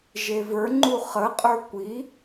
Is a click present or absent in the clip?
present